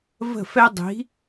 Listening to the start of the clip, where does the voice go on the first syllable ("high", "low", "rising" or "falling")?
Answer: falling